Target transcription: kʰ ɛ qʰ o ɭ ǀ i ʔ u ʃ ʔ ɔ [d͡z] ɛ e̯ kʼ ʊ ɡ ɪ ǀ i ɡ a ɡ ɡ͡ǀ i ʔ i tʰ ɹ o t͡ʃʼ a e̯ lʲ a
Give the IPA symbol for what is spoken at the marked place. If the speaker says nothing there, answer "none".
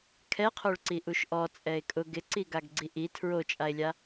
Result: t͡sʼ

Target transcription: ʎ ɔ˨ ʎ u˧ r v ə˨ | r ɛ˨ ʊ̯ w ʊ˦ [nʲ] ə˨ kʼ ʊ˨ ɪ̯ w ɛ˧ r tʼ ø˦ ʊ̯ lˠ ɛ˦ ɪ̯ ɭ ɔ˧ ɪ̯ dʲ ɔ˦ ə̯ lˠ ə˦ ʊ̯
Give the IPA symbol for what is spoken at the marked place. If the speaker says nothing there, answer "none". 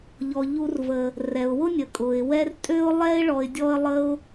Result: nʲ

